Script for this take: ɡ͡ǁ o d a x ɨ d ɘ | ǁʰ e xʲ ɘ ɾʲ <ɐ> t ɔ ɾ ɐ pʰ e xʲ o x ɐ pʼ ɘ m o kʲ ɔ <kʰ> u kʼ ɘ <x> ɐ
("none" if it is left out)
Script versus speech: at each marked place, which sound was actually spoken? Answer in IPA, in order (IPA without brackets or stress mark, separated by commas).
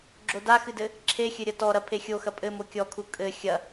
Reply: ɐ, kʰ, xʲ